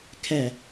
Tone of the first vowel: low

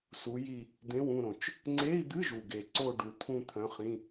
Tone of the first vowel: rising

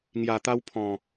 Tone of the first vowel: low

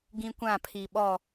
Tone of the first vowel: high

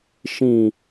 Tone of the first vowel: low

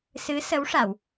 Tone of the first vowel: rising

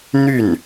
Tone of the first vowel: falling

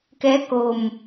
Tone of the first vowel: rising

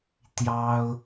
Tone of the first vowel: high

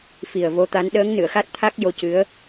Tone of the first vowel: low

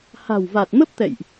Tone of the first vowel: low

